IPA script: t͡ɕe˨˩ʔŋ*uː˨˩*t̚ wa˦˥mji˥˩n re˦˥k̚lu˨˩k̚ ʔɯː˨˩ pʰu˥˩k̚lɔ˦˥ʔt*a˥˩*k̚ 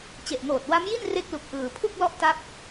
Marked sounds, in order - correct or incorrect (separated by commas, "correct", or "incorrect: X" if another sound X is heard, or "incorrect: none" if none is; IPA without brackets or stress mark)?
incorrect: oː˨˩, incorrect: a˦˥